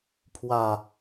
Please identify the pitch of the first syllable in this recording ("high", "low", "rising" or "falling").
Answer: low